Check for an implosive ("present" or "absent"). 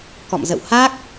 absent